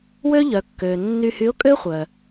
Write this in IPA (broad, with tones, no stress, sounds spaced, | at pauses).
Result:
w ø˥ ʎ œ˩˧ kː øː˩ nː y˧ h y˧˥ ʊ̯ kʼ ø˥ χʷ œ˩